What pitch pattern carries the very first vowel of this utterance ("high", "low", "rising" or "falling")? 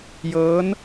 rising